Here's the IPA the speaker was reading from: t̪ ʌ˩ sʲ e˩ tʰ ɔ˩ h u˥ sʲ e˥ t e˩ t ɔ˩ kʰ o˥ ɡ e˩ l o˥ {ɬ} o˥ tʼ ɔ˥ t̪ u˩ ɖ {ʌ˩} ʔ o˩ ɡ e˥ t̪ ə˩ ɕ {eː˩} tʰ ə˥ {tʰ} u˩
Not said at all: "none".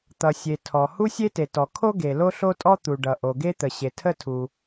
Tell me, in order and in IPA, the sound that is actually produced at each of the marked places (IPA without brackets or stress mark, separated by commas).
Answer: ɬ, ʌ˩, e˩, tʰ